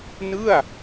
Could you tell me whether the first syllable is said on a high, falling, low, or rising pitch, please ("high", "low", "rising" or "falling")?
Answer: falling